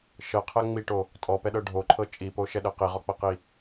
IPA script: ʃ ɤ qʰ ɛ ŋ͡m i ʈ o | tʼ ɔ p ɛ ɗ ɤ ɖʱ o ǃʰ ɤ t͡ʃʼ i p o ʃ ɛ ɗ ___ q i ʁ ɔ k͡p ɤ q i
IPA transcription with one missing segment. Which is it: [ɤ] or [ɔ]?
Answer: ɤ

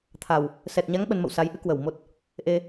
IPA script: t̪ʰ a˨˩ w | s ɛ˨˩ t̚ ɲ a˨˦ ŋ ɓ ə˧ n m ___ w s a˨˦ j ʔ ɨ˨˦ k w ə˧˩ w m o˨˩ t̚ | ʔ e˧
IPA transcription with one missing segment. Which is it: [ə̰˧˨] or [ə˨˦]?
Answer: ə̰˧˨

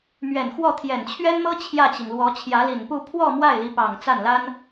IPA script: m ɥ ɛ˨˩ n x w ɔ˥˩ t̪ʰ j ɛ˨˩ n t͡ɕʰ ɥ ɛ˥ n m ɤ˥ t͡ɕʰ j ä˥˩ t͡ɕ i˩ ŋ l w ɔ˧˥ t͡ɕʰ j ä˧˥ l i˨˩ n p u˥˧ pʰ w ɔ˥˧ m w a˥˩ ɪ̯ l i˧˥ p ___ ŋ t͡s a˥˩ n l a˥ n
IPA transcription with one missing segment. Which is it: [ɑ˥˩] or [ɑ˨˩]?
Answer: ɑ˨˩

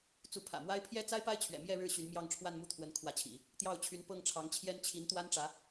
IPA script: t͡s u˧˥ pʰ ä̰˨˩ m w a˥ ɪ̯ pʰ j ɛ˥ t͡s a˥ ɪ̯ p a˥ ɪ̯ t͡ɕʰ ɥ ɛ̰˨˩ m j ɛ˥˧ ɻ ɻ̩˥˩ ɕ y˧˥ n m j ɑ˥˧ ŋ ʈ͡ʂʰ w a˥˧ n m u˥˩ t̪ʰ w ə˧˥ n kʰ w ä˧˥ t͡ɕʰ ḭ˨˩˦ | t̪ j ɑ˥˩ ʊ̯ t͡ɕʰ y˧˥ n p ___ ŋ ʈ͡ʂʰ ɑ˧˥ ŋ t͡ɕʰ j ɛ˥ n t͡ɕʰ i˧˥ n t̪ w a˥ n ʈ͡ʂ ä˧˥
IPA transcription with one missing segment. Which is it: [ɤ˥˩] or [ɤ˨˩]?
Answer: ɤ˥˩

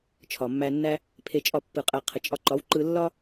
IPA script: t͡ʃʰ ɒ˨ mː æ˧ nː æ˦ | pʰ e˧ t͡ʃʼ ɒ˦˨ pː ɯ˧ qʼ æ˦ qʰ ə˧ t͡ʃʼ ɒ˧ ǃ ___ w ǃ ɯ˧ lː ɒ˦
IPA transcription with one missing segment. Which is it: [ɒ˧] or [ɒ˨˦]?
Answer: ɒ˨˦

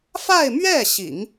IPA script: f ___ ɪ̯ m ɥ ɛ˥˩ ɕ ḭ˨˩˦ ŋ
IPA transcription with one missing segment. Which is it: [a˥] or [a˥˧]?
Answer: a˥˧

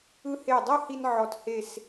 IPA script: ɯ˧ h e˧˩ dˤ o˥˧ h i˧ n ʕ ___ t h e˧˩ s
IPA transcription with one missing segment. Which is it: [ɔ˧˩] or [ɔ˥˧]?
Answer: ɔ˧˩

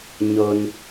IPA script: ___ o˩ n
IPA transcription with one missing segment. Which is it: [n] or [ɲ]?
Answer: ɲ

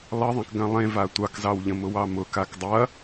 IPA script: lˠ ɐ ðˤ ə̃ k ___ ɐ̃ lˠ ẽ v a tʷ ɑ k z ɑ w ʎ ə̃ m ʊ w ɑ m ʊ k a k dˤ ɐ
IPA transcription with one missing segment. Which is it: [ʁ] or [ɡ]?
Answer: ɡ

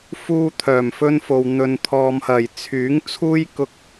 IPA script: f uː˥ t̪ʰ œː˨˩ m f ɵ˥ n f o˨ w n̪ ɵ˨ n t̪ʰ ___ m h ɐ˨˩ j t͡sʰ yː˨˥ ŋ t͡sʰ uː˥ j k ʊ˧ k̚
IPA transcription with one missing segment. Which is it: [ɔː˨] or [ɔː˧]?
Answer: ɔː˨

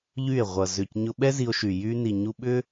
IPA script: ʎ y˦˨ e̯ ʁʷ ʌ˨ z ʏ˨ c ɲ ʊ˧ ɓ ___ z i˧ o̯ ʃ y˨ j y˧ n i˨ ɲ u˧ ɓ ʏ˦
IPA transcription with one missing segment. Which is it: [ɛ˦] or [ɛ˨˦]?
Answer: ɛ˦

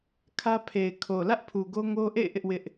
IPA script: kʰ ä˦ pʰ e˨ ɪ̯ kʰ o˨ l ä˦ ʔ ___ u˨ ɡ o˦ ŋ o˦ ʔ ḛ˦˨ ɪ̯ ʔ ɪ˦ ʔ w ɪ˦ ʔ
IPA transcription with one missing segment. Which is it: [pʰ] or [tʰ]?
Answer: pʰ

